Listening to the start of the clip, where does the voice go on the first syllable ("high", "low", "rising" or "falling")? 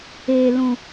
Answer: low